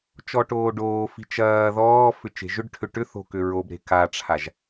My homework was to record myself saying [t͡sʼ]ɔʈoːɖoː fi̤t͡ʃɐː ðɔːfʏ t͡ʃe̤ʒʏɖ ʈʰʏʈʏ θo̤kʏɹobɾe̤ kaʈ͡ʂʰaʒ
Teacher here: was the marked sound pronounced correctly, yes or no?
no